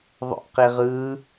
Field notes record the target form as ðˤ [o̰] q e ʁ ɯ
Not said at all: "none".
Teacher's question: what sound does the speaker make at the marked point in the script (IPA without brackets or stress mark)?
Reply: o̰